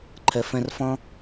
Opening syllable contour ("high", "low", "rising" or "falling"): low